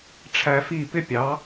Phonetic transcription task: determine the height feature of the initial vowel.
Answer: low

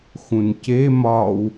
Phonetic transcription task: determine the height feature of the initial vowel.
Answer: high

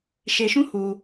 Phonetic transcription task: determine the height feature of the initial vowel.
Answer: mid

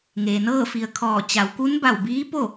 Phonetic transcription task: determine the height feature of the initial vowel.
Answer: mid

